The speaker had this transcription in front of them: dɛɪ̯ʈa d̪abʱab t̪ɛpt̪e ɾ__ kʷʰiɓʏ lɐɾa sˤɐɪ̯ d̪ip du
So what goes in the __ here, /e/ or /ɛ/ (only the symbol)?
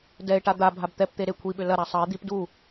e